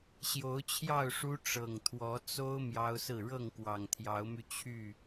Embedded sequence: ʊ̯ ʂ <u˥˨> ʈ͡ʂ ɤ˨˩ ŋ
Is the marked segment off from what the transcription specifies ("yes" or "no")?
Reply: yes